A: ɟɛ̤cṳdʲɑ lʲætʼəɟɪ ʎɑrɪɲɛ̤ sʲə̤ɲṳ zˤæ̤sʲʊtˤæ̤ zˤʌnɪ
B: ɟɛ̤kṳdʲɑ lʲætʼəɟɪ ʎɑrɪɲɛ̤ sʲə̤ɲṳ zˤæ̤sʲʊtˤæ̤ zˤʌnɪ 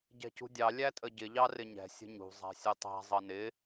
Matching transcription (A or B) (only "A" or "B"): A